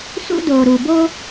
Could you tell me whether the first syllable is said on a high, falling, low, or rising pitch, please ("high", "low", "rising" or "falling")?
high